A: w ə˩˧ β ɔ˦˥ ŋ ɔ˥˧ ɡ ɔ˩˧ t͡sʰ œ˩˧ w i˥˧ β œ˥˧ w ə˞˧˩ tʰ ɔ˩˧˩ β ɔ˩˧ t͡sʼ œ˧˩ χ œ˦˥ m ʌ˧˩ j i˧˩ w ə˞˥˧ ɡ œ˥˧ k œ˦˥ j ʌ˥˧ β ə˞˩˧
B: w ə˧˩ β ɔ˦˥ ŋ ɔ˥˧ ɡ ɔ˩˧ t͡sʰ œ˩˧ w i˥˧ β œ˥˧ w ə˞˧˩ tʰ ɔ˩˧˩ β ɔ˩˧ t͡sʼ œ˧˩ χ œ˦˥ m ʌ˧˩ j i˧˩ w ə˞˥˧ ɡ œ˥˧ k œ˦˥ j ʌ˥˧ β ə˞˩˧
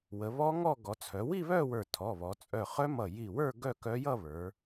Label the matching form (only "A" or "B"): A